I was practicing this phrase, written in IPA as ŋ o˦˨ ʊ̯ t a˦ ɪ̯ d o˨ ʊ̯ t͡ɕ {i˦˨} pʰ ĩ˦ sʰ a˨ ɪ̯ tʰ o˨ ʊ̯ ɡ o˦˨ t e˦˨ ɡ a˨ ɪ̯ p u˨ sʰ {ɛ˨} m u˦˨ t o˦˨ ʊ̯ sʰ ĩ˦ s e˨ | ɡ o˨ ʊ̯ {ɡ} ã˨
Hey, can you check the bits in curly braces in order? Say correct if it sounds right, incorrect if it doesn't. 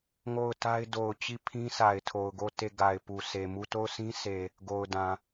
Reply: correct, incorrect, incorrect

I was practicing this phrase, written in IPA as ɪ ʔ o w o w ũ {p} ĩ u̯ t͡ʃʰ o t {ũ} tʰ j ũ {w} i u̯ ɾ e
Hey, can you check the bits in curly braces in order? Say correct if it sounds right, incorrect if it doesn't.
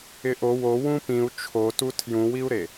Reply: correct, incorrect, correct

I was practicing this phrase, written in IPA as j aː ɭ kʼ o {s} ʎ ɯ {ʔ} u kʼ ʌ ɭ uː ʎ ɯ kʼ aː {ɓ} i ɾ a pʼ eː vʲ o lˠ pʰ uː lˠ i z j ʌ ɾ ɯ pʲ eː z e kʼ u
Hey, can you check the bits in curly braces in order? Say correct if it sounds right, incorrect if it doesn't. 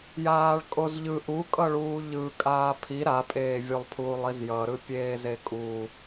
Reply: incorrect, correct, incorrect

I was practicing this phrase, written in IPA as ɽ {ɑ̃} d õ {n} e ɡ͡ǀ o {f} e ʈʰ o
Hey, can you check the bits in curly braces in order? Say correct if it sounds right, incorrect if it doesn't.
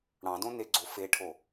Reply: correct, correct, correct

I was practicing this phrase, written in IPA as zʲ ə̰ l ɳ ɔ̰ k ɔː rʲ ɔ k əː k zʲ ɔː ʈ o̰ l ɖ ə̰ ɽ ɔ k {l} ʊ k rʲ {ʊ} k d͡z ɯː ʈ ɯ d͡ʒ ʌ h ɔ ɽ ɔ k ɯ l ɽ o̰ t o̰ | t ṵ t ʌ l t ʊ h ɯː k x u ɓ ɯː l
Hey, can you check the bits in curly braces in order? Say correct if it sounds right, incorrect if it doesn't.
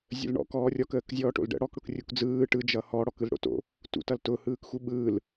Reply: incorrect, incorrect

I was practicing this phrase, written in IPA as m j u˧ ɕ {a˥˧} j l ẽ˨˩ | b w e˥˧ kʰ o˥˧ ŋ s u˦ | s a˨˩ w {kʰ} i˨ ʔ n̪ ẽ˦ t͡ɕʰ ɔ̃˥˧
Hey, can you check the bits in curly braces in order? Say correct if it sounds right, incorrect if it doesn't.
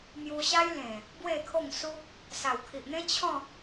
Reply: incorrect, correct

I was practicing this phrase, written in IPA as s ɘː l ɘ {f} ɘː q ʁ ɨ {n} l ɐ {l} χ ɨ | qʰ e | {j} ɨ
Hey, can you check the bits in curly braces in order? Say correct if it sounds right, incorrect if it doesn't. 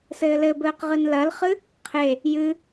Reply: incorrect, correct, correct, correct

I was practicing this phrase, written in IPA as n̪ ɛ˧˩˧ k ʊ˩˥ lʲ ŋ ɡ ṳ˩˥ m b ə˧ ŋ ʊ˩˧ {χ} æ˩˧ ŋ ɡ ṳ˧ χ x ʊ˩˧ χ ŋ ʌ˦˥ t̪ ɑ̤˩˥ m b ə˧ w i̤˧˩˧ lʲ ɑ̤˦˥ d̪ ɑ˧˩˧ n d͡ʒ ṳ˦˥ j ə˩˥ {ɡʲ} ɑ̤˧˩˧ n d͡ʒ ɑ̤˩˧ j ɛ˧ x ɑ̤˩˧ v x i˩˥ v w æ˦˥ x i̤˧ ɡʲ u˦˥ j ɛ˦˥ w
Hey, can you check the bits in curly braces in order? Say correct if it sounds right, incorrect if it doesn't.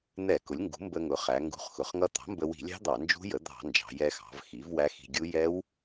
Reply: correct, incorrect

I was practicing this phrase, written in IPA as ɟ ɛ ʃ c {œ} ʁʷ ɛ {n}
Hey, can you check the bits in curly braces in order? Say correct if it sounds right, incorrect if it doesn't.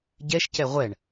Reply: incorrect, incorrect

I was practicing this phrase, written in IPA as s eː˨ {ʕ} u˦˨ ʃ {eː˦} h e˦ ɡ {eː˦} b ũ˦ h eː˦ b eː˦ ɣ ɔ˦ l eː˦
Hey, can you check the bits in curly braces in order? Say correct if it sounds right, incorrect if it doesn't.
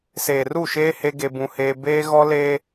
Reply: incorrect, correct, incorrect

